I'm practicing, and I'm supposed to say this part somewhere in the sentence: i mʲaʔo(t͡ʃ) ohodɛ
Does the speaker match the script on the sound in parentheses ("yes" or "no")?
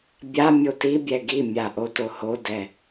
no